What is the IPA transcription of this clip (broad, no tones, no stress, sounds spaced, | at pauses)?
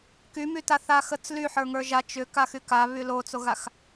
k y m y t a θ a x ə t͡s l y ħ ə˞ ŋ ə˞ ʒ a t͡ʃ ʏ k a x y k a β y l o t͡s o ɣ a x